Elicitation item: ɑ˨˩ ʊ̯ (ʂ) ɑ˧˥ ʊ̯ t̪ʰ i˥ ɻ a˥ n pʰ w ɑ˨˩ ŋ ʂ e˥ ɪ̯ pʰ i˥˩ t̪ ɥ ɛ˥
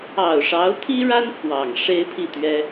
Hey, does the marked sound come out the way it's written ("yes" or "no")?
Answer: yes